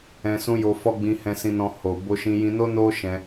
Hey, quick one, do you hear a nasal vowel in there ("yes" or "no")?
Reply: yes